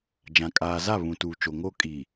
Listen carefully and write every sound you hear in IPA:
d͡ʒã˨ kʼaː˨ za˦˨ βũ˨tuː˨t͡ʃo˨ ŋo˦kʼi˨

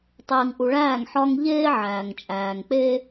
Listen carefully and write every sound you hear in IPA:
tˤeː˨ŋʔu˨ɭæː˦˨ŋ ħɒ˦ŋ ʎeː˦ ʕæː˨ŋt͡ʃʼæː˨ŋk͡pe˦

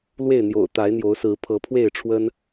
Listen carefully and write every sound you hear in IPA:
lwe˥˨ɪ̯n̪jo̰˨˩ʊ̯ t̪a˨˦ɪ̯n̪jo˨˦ʊ̯sɹ̩˨˦ pʰɤ˨˦pʰwe˥˨ɪ̯ʈ͡ʂʰwə˦n

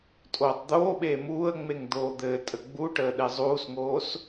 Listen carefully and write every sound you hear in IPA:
tʼoːtˤd̪oːɓeː muːə̯ŋ͡meŋ d̪oːd̪ɘːtʼə ɡ͡buʈəː ɗezˤuːsŋoːs

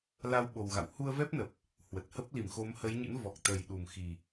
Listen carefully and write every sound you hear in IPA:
la˧wɓo˨˩wɣa̰˧˨w hu˧ə̯vɛ˦˥p̚nə˨˩p̚ | hwə˨˩t̚hə˦˥p̚ li˧˩mxo˨˦mhə˨˦jɲɨ̰˧˥n vɔ˨˩k̚t̪ə˨˩jɗu˨˩m xi˨˩

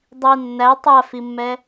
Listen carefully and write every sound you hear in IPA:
dˤi nːæ tˤafimːɛ

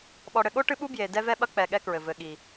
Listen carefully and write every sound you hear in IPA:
ɓɔ˨ɽɘ˨ɠo˦ ʈɨ˦ɓu˦ bje˨ dɛ˦vɛ˦ ɓɐ˦k͡pɛ˨ ɠɛ˦kɹɘ˨ vɘ˨ɠi˨

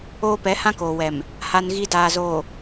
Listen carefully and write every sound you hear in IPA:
oː˦ pɛ˨˦hã˦koː˨wɛ˨m | ha˦nɣi˦ daː˨ zoː˨

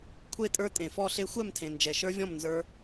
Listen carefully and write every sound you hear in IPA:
kʷʰe˥˧tʼə˞˦˥tʼẽ˨fɔ˥˧ ɬe˦˥xʷɛ˥˧mtʰẽ˨ nd͡ʒɛ˨ʃə˞˦˥vʲɔ̃˥˧m nzə˞˦˥

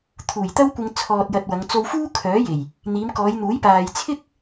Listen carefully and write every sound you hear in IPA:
t̪ʰuː˨˩jt̪ɐ˥wkʷɪ˧ŋ t͡sʰɔː˧t̚jɐ˧t̚wɐ˨˧ŋ t͡so˧wfuː˥ kʰœː˨˥je˨˩j | n̪iː˨˧mkɔː˨˧jn̪uː˨˥j paː˨jt͡sʰɪ˥k̚

